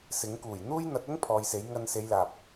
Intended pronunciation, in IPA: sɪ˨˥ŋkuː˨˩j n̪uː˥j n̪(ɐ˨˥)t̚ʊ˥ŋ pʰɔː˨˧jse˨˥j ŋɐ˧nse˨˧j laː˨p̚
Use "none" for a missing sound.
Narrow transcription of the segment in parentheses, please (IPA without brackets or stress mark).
ɐ˨˥